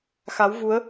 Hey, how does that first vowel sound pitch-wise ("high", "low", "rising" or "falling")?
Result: rising